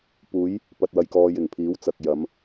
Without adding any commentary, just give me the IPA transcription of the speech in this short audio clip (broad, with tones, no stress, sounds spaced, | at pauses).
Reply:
p uː˨˧ j | p ɐ˨ t̚ w ɐ˨ j k ɔː˨ j ɪ˨˩ ŋ pʰ iː˨˥ w t͡s ɐ˨ k̚ j ɐ˨˧ m